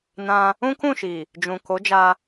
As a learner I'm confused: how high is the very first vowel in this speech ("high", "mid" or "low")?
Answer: low